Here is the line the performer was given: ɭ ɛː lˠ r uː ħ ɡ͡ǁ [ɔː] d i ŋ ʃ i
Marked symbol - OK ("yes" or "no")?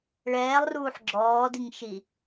yes